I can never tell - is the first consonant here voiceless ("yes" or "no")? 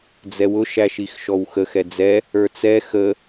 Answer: no